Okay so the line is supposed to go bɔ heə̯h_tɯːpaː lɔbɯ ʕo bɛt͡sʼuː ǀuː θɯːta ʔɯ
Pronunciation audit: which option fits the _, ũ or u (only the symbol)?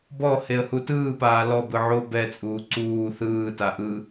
u